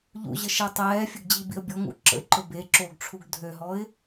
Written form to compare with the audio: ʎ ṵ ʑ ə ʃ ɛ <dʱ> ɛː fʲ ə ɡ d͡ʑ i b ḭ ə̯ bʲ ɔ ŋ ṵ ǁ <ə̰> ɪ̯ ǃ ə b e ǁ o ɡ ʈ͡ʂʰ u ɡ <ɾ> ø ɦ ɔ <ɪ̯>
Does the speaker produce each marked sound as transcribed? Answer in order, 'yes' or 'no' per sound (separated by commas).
no, yes, no, yes